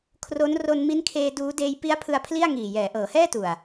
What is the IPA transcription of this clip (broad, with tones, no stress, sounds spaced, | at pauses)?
kʰ r o˦˥ n r o˧ n m i˦˥ n kʰ eː˧ d uː˦˥ d eː˧ j p i˦˥ a̯ pʰ ɯ˧ a̯ pʰ l i˥˩ a̯ ŋ iː˨˩ j ɛː˩˦ ʔ ɤː˩˦ h ɛː˥˩ t u˨˩ a̯